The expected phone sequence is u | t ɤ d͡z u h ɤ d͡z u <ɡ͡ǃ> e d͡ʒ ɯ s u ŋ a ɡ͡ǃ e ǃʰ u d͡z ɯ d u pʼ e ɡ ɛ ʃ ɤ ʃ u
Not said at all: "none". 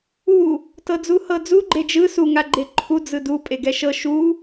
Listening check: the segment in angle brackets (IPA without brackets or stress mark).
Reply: ɡ͡ǃ